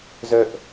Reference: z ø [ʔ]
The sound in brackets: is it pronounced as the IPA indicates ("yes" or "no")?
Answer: yes